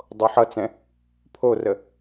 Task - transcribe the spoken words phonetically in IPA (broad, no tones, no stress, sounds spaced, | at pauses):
dˤ o ħ ʌ t͡s ɛ̃ | pʰ o r ə